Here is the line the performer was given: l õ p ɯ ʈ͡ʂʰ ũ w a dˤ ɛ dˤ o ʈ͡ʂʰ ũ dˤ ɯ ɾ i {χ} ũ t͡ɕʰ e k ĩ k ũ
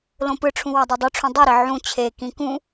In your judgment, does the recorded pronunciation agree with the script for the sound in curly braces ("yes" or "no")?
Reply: no